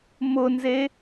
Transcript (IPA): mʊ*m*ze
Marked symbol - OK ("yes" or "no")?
no